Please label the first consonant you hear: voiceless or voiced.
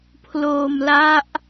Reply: voiceless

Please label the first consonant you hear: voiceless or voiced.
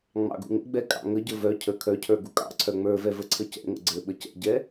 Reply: voiced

